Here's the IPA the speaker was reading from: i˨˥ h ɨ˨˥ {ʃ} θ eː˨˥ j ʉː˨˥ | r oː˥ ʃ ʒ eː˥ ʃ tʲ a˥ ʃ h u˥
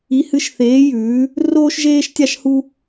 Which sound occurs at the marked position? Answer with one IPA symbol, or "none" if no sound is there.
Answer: ʃ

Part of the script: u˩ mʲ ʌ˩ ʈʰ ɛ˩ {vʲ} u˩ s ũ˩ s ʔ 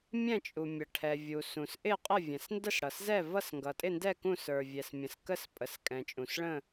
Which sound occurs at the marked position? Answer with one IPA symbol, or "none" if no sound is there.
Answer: vʲ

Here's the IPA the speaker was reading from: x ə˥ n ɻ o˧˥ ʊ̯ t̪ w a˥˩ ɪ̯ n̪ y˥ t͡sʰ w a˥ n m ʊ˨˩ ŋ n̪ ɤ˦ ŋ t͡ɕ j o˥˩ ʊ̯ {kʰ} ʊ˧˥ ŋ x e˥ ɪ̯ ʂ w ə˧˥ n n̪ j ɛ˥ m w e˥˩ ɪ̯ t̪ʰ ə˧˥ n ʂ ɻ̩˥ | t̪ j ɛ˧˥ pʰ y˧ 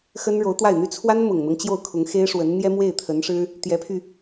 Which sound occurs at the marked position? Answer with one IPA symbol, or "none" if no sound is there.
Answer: kʰ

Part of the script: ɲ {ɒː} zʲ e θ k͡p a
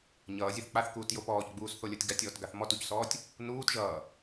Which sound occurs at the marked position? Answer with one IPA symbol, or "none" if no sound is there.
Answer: ʌː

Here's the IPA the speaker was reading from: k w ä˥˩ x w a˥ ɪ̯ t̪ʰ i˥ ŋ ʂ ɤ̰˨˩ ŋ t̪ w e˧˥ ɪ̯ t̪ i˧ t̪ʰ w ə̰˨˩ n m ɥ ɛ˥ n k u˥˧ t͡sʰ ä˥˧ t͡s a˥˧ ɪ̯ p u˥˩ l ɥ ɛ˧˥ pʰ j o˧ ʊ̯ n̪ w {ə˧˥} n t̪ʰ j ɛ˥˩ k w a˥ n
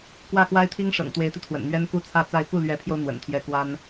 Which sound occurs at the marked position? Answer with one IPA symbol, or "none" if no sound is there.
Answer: ə̰˨˩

